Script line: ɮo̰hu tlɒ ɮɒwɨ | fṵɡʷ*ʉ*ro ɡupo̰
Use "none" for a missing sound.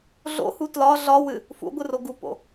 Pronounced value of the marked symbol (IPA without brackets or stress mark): ɨ